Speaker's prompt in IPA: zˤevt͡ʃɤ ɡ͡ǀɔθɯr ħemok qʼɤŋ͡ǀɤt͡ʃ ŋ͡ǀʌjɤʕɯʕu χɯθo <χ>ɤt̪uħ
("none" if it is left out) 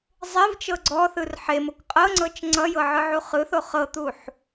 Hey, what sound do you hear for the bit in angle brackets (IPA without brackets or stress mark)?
χ